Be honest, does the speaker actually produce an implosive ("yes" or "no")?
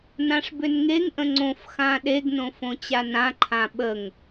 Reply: yes